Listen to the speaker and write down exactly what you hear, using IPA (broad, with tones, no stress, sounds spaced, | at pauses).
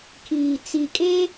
kʰ iː˨ t͡s i˨ kʼ e˦